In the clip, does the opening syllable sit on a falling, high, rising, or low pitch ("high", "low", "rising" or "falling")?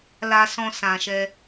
low